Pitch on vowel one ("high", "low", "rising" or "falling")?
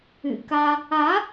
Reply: low